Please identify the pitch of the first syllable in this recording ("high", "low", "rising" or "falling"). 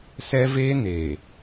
high